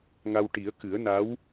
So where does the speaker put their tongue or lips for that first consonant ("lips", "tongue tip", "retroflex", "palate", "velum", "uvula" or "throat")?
velum